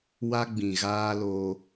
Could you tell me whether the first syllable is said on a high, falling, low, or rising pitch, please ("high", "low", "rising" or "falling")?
high